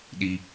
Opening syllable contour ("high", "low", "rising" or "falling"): low